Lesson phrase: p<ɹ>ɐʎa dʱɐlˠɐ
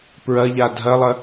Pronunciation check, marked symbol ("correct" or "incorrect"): correct